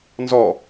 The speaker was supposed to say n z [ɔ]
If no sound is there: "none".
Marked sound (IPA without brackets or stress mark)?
ɔ